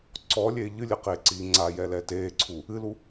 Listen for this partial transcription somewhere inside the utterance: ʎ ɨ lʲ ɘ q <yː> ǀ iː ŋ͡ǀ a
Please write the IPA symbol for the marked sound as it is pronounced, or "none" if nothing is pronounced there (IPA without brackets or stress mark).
eː